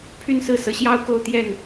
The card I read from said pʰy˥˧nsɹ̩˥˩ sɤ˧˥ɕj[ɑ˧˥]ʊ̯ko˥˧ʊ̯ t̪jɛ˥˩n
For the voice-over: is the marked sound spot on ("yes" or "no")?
no